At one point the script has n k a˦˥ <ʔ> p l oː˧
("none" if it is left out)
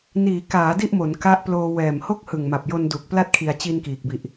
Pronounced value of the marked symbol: ʔ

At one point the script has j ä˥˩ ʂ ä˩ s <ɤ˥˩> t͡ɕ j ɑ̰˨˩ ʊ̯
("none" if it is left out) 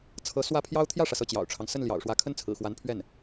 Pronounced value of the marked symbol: ɤ˥˩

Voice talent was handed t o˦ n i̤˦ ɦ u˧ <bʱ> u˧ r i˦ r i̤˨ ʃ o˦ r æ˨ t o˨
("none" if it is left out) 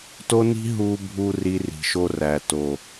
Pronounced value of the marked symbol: bʱ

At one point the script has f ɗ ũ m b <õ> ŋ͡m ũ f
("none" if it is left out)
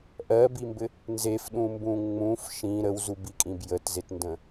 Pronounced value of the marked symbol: ũ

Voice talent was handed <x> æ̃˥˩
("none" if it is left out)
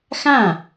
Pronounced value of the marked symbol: x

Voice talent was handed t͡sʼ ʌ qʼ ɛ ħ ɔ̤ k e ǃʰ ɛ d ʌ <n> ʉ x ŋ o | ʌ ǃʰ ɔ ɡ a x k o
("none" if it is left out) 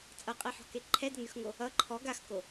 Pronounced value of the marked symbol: n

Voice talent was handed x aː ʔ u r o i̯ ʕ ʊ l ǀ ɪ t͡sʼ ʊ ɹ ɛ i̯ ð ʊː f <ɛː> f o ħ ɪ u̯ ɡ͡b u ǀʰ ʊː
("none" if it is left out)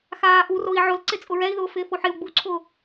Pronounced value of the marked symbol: ɪː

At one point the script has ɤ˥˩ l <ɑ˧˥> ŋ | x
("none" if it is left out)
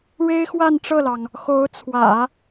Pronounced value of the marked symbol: ɑ˩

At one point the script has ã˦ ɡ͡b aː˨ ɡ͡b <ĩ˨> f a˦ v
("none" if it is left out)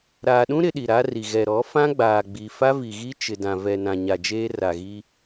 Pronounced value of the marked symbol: i˨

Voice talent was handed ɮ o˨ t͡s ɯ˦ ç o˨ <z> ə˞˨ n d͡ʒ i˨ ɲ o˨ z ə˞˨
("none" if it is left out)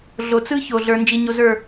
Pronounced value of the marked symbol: ɮ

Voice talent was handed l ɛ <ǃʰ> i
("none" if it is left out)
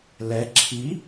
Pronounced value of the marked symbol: ǁʰ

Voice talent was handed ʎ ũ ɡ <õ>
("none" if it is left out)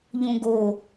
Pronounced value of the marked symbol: o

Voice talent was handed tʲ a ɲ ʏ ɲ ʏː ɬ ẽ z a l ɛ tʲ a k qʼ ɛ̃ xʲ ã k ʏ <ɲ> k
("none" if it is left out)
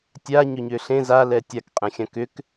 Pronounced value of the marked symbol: none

